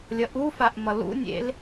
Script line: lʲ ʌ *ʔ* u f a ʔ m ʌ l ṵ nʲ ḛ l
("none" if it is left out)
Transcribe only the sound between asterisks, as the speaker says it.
ʔ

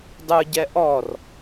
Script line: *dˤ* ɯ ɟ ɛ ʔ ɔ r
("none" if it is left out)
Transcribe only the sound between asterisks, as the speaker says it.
dˤ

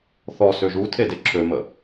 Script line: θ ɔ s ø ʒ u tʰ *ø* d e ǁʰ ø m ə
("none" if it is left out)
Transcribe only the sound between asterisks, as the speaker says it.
e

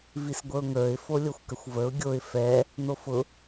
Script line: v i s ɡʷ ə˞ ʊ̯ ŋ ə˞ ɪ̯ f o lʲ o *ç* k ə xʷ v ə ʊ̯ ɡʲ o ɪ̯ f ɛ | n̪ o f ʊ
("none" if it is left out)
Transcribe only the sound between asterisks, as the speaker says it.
xʷ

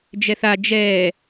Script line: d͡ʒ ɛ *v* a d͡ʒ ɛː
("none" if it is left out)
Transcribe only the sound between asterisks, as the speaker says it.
θ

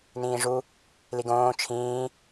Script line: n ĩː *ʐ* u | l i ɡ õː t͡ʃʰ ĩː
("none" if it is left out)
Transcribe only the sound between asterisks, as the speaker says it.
ʐ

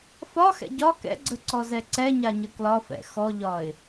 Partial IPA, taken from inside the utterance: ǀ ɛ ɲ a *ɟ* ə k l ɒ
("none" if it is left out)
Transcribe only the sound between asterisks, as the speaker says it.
ɲ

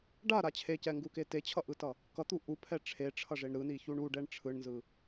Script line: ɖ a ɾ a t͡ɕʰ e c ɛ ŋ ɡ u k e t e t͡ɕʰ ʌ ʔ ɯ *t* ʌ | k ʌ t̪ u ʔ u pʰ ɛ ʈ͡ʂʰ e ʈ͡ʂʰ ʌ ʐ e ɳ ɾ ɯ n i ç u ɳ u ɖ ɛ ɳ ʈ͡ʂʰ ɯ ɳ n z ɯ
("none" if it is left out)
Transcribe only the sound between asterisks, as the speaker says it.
t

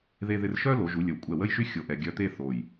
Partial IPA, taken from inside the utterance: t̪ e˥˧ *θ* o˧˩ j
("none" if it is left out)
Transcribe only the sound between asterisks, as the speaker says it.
θ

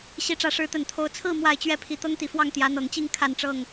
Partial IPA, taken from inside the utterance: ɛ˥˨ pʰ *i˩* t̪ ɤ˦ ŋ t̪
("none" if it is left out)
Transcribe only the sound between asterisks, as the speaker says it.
i˨˦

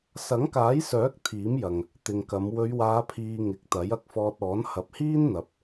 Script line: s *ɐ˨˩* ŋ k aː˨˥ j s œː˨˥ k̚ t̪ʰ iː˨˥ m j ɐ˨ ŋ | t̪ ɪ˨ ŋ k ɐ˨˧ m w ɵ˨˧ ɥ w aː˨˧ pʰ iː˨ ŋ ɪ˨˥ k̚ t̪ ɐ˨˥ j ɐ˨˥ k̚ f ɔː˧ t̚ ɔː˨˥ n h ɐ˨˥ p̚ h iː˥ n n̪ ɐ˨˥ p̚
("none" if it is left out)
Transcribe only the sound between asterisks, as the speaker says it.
ɐ˨˥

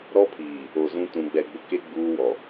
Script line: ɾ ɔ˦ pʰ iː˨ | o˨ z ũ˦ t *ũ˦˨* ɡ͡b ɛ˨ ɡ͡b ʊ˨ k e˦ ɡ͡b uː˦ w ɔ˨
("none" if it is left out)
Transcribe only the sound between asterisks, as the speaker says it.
ũ˨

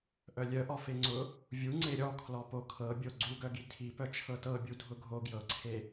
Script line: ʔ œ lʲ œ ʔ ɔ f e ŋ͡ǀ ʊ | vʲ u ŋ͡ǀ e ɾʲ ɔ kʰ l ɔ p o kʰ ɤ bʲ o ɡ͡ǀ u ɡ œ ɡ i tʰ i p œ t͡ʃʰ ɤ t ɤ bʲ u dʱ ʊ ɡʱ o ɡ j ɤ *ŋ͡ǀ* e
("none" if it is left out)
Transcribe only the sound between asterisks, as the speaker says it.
ǀʰ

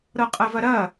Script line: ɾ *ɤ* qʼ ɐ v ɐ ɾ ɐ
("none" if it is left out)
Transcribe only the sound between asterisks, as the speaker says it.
ɤ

